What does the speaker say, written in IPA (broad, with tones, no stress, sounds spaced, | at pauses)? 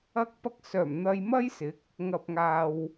ɐ˧ k̚ p ɐ˧ k̚ s œː˨˩ m n̪ ɐ˧ j m ɐ˥ j s ɪ˨˥ k̚ | ŋ ɐ˨ p̚ ŋ aː˨ w